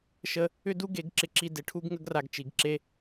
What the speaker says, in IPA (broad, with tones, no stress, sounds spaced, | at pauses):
ʃ ə˦ | ʏ˦ d u˦ ɡ e˨˦ ɡ ǁ ɪ˧ ǁ i˧ d ɪ˨˦ ʈʰ u˦ ɡ ŋ ə˦ ɡ r a˧ ɡ t͡ʃ i˨ ɡ ǁ e˧